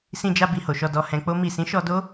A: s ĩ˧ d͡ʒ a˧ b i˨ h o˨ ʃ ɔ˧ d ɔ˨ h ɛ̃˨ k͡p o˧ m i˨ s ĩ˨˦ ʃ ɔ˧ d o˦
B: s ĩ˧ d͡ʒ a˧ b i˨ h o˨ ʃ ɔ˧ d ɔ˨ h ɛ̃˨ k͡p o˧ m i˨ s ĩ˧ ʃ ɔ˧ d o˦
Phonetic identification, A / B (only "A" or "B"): A